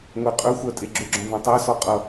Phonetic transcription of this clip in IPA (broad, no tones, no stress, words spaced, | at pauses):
ŋʷeqʼɵxʷɜ tʼeɡ͡ǁɵɡ͡ǁɔ̃ vɔ̃tˤɜsɔ qʼʌ